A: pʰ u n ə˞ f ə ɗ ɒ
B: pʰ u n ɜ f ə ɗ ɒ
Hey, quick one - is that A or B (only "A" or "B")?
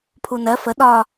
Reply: B